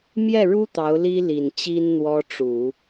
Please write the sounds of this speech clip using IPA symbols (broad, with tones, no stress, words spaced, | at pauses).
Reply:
mjɛ˥˩ɻu˥ t̪ɑ˧˥ʊ̯li˥ li˨˩nt͡ɕi˥n n̪wɔ˥ʈ͡ʂu˨˩˦